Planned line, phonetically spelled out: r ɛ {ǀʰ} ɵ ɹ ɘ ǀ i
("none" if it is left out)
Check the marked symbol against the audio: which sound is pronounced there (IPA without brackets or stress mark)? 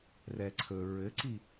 ǀʰ